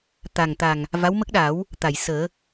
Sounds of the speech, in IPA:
t̪ a˨˩ ŋ t̪ a˨˩ ŋ | v a˧˥ w m ə˦˥ k̚ ɗ a˨˩˦ w | t̪ a˨˩˨ j s əː˨˩˦

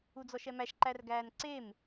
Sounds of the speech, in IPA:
u d͡z ɔ ʃ ɛ m æ ʃ ǃ æ r ɡ æː n ǀ e m

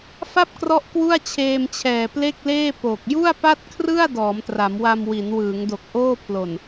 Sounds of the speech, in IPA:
f a˥˩ p̚ k r ɔ˦˥ ʔ k w u˥˩ a̯ t͡ɕʰ eː˧ m t͡ɕʰ ɛː˨˩ p l e˥˩ k̚ l eː˥˩ p o˨˩ k̚ j u˥˩ a̯ p a˥˩ t̚ kʰ r ɯ˥˩ a̯ d ɔː˩˦ m t r a˩˦ m w a˧ m w i˩˦ n w ɯː˩˦ ŋ d o˨˩ k̚ ʔ oː˥˩ pʰ l o˨˩ n

